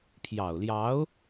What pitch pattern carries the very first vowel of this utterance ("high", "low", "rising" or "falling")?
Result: low